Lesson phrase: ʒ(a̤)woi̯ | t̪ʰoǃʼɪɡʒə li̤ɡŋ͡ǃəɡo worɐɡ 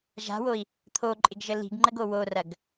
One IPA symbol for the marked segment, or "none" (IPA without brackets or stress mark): a̤